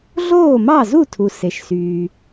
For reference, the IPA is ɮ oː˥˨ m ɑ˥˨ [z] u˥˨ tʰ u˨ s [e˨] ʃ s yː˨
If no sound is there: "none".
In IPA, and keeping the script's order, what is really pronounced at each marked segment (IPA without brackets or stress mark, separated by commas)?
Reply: z, e˨